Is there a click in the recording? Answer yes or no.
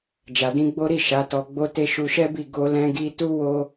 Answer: no